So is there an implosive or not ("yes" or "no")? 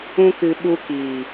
yes